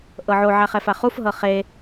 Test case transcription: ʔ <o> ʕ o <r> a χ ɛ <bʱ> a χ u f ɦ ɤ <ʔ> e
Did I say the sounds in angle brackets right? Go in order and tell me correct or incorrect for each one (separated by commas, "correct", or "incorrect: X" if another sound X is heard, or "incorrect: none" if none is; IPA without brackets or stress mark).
incorrect: ɤ, incorrect: ʕ, incorrect: f, incorrect: χ